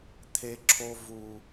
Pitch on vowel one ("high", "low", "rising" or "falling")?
high